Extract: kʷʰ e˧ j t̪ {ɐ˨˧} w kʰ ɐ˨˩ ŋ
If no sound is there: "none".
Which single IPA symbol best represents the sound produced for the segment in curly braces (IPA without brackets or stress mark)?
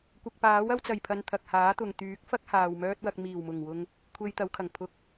ɐ˨˧